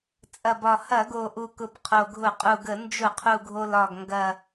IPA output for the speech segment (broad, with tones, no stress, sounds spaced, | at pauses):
t͡sʼ ɐ˨˩ b ɒ˨˩ h ɐ˧˩˧ ɡ o˨˩ ʔ u˨˩ k ʊ˨˩ b qʰ o˨˩ ɡʱ ʊ˧˩˧ qʼ u˨˩ ɡ ə˧˩˧ n d͡ʒ ʊ˧˩˧ qʰ u˨˩ ɡʱ o˨˩ l ɒ˨˩ ɡ ŋ ɡ ɐ˨˩